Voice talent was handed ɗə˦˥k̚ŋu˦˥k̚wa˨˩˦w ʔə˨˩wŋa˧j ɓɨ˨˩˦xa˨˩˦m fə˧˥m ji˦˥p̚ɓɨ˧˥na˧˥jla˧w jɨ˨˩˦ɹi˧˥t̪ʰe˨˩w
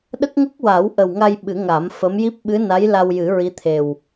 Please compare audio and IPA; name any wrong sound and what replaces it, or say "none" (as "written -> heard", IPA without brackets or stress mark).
x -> ŋ